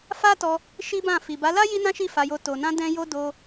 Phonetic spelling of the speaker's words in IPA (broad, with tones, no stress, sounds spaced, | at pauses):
f a˦ t ɔ˧ | ʃ i˦ b ã˦˨ f i˨ b a˨˦ l a˦ j i˦ n ã˦ ʃ i˦˨ f a˧ j o˧ t o˨ n ã˧ d ɛ̃˦ j o˦ d o˧